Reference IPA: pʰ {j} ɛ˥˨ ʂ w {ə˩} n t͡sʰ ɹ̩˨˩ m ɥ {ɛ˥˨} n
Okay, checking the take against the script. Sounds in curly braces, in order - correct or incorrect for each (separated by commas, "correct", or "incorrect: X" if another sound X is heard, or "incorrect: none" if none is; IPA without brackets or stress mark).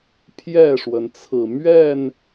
correct, correct, correct